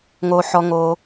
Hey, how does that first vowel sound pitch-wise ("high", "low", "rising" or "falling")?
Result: low